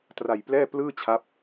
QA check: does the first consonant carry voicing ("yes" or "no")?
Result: no